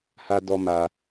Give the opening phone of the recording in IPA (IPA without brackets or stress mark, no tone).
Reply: h